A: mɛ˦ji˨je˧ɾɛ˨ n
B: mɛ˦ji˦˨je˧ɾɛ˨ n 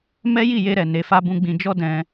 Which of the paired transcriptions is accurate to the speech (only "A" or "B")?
B